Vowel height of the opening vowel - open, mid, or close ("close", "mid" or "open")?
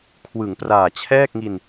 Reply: close